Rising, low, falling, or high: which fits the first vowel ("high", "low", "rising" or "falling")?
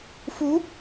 rising